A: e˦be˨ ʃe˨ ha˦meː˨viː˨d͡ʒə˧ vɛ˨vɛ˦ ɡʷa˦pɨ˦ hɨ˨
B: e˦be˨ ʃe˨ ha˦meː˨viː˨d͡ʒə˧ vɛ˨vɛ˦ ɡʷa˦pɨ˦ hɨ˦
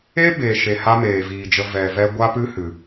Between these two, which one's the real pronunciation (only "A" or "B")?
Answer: A